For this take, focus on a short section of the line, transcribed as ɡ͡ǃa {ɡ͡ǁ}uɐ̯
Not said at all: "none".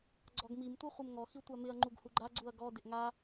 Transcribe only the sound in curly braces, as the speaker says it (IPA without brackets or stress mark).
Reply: ɡ͡ǀ